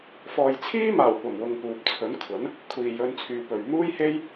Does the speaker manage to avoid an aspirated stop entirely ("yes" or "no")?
no